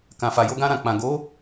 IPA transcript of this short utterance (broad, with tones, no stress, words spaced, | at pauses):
kã˨fa˨ jo˧ɡã˧ɾã˨k͡pã˨ ɡo˨˦